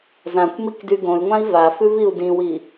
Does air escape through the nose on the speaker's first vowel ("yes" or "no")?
yes